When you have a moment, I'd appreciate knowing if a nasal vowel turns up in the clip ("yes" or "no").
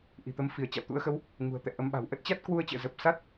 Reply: no